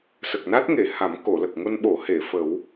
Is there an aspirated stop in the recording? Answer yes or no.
no